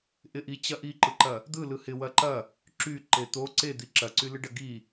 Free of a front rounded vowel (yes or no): no